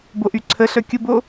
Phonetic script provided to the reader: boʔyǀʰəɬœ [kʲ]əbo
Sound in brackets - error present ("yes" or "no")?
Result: no